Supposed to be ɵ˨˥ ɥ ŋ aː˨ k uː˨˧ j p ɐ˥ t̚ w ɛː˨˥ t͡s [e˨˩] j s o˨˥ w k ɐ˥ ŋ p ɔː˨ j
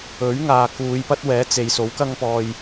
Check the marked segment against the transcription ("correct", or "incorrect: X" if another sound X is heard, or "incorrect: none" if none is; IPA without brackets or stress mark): incorrect: e˨˧